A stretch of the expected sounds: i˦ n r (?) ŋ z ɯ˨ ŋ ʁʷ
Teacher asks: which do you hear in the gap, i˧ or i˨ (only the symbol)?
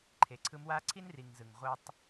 i˨